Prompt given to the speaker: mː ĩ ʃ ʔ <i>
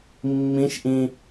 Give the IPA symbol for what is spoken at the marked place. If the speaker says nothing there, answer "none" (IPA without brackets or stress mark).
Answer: ĩ